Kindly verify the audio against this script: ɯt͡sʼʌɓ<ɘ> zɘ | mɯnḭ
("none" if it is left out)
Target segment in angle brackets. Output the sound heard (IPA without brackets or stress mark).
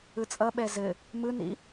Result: ɛ